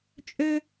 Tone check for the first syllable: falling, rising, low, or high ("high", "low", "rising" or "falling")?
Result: high